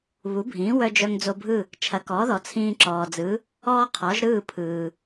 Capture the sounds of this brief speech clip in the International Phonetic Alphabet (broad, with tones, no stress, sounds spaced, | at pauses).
β u˩˥ bʱ ĩː˩˥ w œ˧ d͡ʒ œ˧ ŋ d͡z o˧ bʱ ɯ˥˩ | t͡ʃʰ ɐ˩˥ k ɔː˩˥ ð ɔ˩ t͡sʰ ĩː˧ ǁ ɔː˩ d͡z ɯ˩˥ | ɔː˥ qʰ ɔ˩˥ ʒ ɾ ɯː˥˩ pʰ ɯː˩